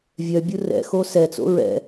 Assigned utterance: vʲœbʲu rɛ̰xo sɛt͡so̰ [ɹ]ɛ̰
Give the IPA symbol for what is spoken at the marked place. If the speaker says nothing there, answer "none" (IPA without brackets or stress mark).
ɹ